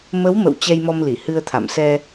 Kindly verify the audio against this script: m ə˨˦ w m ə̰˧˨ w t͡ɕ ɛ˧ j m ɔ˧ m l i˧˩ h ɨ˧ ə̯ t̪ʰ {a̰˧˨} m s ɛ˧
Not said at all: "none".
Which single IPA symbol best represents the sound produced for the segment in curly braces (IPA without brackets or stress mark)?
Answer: a̰˧˨